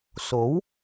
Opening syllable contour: rising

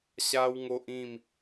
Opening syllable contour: high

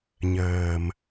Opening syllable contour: low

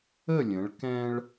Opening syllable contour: falling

